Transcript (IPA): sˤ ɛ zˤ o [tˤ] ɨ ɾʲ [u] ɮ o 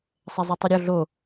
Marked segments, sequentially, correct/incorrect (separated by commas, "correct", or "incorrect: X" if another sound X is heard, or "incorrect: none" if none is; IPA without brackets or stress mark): correct, incorrect: o